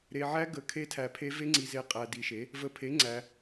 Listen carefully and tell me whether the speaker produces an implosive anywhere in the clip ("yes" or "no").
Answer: no